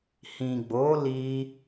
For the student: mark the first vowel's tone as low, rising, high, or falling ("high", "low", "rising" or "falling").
low